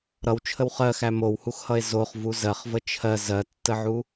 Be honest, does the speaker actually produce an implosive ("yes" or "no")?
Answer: no